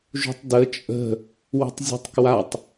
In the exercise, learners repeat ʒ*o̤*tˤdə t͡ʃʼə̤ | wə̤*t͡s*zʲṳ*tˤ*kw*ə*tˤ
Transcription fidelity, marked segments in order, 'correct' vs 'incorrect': incorrect, incorrect, correct, incorrect

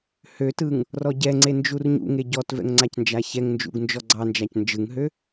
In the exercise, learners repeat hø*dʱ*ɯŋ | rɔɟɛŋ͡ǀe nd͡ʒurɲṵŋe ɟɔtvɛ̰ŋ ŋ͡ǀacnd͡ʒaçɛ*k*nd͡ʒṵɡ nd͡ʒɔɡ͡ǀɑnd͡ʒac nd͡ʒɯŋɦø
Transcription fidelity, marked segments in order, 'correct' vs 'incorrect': incorrect, incorrect

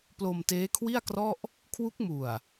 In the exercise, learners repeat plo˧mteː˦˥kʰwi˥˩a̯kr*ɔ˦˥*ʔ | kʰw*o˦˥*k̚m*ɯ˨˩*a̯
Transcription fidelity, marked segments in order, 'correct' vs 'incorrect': incorrect, incorrect, incorrect

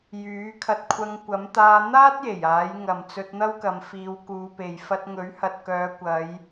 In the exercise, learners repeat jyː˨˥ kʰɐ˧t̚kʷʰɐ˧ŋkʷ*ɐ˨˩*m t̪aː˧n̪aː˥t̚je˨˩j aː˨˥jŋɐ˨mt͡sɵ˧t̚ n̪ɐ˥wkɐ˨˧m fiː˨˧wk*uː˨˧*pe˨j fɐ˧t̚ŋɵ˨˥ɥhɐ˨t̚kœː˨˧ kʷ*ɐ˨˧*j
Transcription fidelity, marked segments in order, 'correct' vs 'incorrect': incorrect, correct, correct

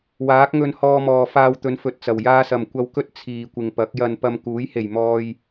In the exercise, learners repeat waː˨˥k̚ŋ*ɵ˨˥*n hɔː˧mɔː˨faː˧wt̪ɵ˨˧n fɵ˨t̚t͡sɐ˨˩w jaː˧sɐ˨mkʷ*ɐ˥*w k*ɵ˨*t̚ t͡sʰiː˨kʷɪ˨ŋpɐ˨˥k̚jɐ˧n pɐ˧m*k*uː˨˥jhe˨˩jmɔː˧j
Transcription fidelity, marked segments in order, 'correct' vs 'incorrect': incorrect, incorrect, incorrect, correct

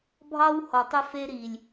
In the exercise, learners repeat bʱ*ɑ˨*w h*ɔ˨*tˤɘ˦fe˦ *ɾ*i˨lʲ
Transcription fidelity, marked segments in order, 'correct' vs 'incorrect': incorrect, correct, correct

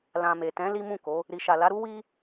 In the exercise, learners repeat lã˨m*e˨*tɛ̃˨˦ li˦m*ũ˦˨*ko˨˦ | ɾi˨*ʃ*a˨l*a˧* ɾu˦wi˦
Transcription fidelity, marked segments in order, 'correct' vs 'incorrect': correct, correct, correct, incorrect

